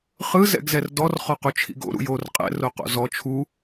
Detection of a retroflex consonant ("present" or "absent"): absent